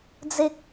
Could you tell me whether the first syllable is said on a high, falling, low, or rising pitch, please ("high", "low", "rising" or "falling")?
high